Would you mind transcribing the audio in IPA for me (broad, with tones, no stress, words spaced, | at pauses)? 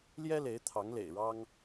ljɛ˥le˧˥ɪ̯ t̪ʰɑ˧˥ŋlḛ˨˩ɪ̯ ɻɑ˥ŋ